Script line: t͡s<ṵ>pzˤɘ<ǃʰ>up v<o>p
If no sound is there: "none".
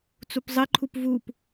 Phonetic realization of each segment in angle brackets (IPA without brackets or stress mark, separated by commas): u, ǃʰ, u